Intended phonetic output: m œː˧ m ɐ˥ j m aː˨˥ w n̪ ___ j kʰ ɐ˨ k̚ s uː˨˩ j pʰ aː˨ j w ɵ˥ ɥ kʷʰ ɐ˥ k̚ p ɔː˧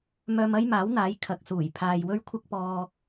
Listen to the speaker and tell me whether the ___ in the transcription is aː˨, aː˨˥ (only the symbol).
aː˨˥